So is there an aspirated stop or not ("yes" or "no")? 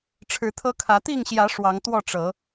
yes